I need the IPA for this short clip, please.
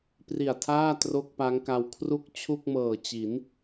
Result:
p r i˨˩ a̯ tʰ aː˥˩ t r o˥˩ k̚ p a˦˥ ŋ k a˧ w kʰ r u˥˩ k̚ t͡ɕʰ u˥˩ k̚ m ɤː˨˩ t͡ɕ i˩˦ n

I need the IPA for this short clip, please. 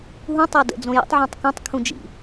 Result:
ɦ ũ tˤ ɜ d ə̰ d͡z õ j ə̰ tˤ ʕ õ tˤ k ũ tˤ kʰ ũ d͡ʒ ḭ

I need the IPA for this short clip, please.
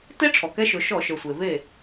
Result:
t e˥ ʈ͡ʂʰ ɔ˩ k ɛ˧˥ ʃ ɵ˩˧ ʃ ɔ˧˩˧ ʃ ə˞˩ sʷ e˩ v e˥˩

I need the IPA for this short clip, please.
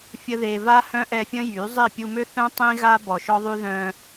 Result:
fʲ ə˦ ð e˧ v a˦ h œ̃˦ ʔ ɛ˧ fʲ ə̃˦ j y˨˦ zˤ i˦˨ pʲ u˧ m ø˦ θ œ̃˦ tˤ ĩ˦ ɣ a˦ b ɔ˨ ʃ ɔ˦ ðˤ y˦ ð œ̃˧

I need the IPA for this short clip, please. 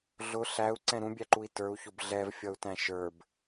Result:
ɮ ʊ ɬ æ u̯ ǀ ɛ̃ ɾ ũ bʲ æ ǃ u i̯ t ə˞ u̯ ç ʊ b ɮ ɛ v fʲ ʌ u̯ t æ̃ ʃ ə˞ b

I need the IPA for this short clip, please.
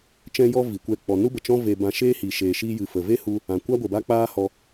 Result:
t͡ʃ ɛ̃˧ j ɔ˧ v i˨ kʷ ɛ˧ k͡p ɔ˨ n u˦ b ə˨ t͡ʃ ɔ̃˦ v e˧ b ã˧ ʃ eː˦ h i˨ ʃ eː˨ ʃ iː˧ j ɨ˨ f ə˨ v e˦ h u˧ | ã˨ kʷ a˦ ɡʷ ə˨ b a˦ k͡p aː˦ h ɔ˧

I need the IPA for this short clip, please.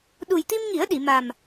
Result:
ɗ u˨˩ j t̪ i˧ m ŋ i˨˩˦ ə̯ ɗ i˨˩˨ m a˨˩ m

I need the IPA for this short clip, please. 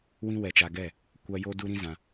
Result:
w ĩ˦ w ɛ˧ t͡ʃ a˧ ɡ ɛ˦˨ | kʷ a˦ j o˦ d u˦ ɾ ĩ˦ z ã˧

